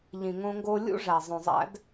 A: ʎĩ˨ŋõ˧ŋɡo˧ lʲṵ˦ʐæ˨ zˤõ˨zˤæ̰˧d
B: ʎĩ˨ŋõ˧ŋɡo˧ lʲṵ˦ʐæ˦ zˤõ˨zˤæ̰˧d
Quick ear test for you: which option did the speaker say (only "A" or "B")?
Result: A